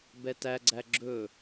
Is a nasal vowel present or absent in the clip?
absent